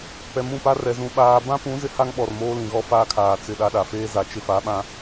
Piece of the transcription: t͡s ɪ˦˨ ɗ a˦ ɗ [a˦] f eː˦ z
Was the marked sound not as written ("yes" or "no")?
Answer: yes